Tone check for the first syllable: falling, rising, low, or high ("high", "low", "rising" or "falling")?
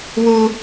high